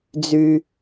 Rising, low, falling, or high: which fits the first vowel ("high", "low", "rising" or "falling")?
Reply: high